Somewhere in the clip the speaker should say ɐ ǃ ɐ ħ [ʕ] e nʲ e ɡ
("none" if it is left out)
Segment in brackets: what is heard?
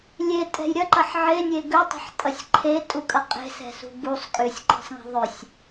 ʕ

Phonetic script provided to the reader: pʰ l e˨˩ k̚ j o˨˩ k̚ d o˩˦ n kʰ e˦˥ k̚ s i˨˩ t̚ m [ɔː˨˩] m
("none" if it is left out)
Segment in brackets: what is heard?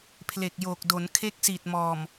ɔː˨˩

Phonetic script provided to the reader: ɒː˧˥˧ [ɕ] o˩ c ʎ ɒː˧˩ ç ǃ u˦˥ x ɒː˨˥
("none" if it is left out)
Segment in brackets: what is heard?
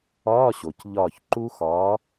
ɕ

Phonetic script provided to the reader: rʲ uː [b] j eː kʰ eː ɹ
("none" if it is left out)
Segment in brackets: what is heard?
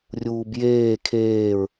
b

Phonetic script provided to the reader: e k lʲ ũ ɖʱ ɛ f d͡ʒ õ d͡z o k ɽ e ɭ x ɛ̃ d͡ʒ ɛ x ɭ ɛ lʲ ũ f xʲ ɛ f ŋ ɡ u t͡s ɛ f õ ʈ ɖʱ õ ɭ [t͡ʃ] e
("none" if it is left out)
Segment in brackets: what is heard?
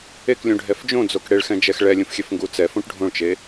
t͡ʃ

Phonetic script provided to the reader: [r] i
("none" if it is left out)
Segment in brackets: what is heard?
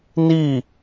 n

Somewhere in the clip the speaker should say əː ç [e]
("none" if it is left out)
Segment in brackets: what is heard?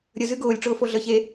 e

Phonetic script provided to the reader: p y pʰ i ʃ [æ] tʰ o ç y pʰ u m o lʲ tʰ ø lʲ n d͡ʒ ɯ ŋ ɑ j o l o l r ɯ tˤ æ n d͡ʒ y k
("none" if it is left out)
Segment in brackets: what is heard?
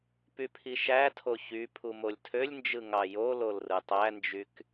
æ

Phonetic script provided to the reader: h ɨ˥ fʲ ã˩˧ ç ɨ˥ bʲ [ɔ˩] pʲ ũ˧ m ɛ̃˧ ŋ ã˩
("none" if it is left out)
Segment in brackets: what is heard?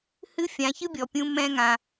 ɔ˩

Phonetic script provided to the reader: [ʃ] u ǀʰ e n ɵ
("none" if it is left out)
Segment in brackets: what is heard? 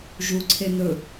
ʒ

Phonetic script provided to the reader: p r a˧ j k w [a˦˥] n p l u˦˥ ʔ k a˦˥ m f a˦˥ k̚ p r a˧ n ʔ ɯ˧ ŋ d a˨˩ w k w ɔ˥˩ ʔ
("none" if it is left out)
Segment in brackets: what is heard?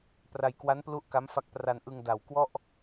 a˦˥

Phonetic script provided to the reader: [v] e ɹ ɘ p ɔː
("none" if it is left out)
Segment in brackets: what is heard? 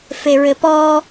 f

